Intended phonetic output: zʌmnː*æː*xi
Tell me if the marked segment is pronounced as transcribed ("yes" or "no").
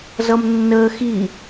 no